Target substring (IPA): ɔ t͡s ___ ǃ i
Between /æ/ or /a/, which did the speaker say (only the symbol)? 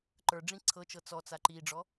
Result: a